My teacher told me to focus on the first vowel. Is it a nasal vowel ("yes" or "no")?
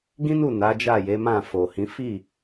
yes